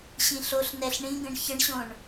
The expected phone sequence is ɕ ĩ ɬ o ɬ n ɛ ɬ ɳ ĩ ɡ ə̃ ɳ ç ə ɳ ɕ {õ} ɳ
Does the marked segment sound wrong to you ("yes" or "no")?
no